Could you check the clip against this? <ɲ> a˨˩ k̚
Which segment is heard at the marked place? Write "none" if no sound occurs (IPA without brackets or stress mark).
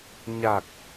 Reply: ɲ